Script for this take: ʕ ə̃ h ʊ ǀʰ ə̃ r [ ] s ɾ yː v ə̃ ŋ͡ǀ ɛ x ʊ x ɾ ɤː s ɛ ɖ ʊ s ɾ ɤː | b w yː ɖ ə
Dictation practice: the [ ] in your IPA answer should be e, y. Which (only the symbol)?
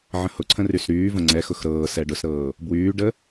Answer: y